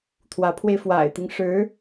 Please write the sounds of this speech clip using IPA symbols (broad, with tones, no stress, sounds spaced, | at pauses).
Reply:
t̪ʰ w ä˧˥ pʰ w e˧ ɪ̯ f w a̰˨˩ ɪ̯ t̪ i˦ ŋ ʂ ɻ̩˧˥